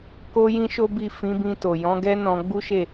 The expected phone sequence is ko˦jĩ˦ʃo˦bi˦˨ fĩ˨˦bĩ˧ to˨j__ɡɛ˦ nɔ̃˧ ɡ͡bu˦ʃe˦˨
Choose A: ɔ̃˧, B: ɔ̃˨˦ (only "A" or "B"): B